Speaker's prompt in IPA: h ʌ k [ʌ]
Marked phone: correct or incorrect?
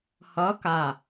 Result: incorrect